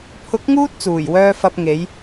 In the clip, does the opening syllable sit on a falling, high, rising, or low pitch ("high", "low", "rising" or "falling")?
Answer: rising